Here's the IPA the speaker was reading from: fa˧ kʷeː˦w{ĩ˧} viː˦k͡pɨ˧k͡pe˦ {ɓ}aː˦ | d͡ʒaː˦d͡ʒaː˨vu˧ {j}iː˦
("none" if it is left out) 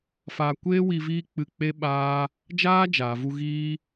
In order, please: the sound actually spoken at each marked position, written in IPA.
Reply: i˧, ɓ, ɣ

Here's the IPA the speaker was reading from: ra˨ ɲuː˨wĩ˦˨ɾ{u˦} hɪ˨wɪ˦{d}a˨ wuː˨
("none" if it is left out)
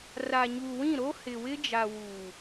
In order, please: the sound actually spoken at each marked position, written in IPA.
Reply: o˦, d͡ʒ

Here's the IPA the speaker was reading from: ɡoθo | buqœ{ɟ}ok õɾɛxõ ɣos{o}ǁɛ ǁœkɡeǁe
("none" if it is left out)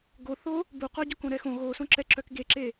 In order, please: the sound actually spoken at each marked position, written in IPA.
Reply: ɟ, õ

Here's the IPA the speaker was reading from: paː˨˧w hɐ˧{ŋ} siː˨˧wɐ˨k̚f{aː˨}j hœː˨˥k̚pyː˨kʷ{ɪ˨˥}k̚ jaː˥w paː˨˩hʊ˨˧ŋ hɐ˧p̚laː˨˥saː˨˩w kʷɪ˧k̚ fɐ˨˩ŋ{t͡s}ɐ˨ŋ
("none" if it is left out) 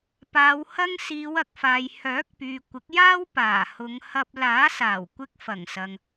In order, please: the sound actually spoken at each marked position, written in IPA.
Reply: ŋ, aː˨, ɪ˨˥, s

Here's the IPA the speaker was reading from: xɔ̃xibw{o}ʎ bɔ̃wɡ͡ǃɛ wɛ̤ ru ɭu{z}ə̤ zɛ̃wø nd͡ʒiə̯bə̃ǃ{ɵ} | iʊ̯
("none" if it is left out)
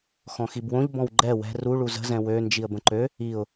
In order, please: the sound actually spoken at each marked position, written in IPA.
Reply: õ, z, ø

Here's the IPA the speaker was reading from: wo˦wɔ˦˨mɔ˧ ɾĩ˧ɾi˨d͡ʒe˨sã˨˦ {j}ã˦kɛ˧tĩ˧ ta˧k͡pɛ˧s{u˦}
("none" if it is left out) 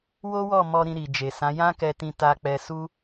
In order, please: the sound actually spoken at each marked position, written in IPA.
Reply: j, u˦

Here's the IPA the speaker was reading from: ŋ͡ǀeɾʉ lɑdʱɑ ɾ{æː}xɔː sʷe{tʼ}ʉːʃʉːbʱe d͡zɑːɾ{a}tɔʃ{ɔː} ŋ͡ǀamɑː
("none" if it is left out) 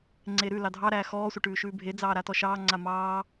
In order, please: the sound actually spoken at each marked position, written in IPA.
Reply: æː, ʈ, a, ɑː

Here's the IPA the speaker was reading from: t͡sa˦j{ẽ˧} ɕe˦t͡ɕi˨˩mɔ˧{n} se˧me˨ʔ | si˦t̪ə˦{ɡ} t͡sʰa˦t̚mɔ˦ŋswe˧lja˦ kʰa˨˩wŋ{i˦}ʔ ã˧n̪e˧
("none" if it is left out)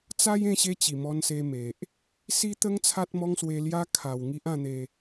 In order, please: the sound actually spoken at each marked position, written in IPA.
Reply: ẽ˧, n, ŋ, i˦

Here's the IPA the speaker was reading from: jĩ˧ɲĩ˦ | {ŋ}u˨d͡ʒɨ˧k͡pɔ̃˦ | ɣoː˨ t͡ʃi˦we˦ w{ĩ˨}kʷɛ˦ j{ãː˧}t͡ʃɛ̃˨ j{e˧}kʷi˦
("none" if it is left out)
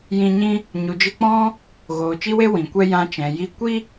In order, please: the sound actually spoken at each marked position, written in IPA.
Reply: ɲ, ĩ˨, ã˧, i˧

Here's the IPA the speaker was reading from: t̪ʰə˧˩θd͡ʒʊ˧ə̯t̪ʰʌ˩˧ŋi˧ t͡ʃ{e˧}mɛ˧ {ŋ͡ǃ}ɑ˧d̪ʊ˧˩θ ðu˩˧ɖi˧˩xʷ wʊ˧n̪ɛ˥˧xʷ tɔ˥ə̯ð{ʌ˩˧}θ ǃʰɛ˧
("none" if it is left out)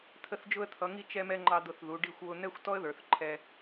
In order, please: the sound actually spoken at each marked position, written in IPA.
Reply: ɛ˧, ŋ͡ǃ, ə˞˩˧

